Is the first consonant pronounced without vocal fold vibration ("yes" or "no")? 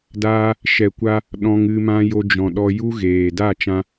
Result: no